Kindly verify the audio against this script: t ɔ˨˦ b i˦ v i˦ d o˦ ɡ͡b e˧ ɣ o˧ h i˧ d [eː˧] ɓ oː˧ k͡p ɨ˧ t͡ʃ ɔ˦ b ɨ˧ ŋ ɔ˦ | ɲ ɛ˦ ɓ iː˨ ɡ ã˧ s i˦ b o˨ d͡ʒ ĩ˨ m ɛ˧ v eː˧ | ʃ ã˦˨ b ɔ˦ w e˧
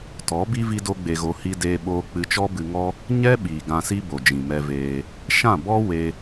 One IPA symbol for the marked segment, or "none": eː˧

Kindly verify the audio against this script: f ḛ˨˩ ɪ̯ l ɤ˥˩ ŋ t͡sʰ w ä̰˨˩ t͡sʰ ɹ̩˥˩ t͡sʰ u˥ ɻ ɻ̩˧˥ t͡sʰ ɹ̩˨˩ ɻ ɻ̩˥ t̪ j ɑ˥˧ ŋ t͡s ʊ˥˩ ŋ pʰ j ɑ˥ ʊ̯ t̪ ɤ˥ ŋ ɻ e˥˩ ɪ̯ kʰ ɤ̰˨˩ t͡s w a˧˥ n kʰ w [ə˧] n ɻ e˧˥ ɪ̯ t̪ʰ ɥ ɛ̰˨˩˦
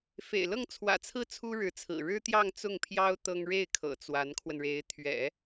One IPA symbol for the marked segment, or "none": ə˧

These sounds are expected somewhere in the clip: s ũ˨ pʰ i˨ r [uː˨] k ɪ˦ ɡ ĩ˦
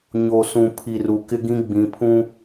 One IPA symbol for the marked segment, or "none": u˨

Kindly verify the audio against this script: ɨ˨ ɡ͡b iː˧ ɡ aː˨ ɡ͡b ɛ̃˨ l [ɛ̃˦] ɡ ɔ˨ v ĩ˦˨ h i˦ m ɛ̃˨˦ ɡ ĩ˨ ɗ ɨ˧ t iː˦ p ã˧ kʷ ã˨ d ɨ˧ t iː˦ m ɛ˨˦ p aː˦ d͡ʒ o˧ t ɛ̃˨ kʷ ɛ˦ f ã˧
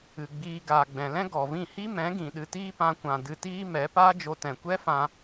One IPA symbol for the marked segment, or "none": ɛ̃˦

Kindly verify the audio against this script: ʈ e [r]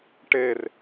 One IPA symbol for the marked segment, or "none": r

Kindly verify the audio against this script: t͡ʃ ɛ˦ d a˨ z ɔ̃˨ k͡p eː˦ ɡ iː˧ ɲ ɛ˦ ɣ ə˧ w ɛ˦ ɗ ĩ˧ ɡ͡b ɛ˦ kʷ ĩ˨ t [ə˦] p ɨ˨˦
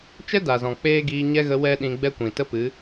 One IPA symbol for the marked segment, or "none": ə˦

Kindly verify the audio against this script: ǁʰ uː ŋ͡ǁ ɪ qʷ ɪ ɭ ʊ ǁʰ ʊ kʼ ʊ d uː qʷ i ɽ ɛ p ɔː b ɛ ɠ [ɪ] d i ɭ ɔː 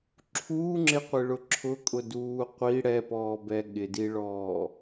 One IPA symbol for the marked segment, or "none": ɪ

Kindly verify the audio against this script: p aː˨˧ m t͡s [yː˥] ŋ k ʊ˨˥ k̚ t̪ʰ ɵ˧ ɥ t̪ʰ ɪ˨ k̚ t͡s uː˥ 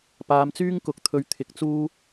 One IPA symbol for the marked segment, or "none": yː˥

